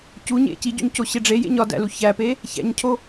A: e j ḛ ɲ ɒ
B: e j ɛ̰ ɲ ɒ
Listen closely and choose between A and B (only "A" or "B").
A